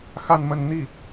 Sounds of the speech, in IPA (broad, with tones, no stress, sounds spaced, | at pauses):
x a˥˧ n m ə˥˧ n n̪ i˥˩